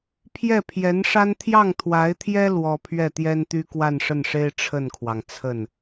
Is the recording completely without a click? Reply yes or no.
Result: yes